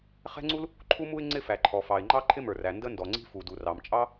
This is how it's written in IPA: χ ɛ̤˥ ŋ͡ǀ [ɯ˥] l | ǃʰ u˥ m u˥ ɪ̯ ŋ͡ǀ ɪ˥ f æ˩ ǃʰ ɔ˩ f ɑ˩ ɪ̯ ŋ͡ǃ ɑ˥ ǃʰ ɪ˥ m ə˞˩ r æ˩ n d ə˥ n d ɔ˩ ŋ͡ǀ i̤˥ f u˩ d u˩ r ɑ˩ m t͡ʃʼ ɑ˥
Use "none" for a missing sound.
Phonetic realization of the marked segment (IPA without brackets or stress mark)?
u˥